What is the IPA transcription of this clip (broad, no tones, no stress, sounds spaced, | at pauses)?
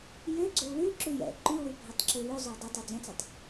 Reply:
j ø ɡ͡ǀ ø w l ʉ ǁ ʉ j ɛ̰ ǃ y w ʉ bʱ ɛ tˤ ǁ ʉ l ʉ zˤ y w dˤ ɵ tˤ ɵ d͡z œ̃ t͡s ɛ tˤ